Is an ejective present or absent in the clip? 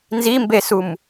absent